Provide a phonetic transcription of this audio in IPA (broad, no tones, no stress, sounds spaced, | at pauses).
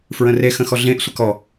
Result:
f ɹ ə̃ r e x ə̃ x ɔ ɮ ẽ ʔ sʷ ə k ɔ